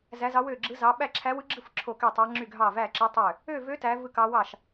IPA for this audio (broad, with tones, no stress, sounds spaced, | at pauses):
z æ˦˥ z ɑ˦˥ w ø˥˧ ɡ͡ǁ ɯ˦˥ z ɑ˦˥ ɓ æ˥˧ ǁʰ æ˦˥ w ɯ˦˥ ɡ͡ǁ ɯ˥˧ f ǁʰ o˥˧ k y˥˧ tˤ ɑ˦˥ ŋ͡ǁ y˥˧ ɡʱ ɑ˥˧ v æ˥˧ ǁ ɯ˦˥ tˤ ø˥˧ | ø˥˧ v ø˦˥ t æ˦˥ v ɯ˥˧ k ɑ˦˥ w ɑ˥˧ ʃ